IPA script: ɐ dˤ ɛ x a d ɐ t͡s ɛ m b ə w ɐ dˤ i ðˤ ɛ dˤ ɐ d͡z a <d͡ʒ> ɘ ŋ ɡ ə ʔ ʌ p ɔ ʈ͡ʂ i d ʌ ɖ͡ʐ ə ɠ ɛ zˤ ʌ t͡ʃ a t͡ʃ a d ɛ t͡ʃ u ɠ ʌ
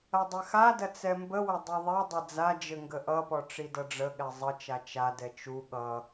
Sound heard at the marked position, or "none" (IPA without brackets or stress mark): d͡ʒ